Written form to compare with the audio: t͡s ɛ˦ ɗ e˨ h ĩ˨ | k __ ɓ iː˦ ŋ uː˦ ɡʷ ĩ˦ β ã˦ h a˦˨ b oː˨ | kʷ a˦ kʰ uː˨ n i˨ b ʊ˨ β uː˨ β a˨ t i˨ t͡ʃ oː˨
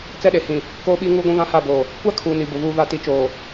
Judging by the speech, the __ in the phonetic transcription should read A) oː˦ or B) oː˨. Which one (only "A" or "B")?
A